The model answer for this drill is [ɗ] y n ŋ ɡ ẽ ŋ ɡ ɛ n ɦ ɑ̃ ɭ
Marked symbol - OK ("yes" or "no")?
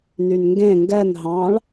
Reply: no